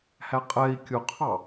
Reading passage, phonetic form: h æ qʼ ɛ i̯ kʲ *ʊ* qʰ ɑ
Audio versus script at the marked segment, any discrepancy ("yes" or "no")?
no